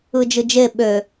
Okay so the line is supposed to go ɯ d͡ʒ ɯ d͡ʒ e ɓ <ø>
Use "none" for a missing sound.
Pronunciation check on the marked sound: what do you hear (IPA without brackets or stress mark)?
ø